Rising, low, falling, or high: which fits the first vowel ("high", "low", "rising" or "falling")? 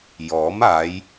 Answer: rising